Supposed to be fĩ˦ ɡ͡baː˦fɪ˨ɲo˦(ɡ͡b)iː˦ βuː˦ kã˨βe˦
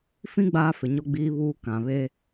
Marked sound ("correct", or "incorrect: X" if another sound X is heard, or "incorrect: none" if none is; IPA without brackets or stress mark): correct